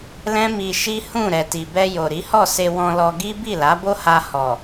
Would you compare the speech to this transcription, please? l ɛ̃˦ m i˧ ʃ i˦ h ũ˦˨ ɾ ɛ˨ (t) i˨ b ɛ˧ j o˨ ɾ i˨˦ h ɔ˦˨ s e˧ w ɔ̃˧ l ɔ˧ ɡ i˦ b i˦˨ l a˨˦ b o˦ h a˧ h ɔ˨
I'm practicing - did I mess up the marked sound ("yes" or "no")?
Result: no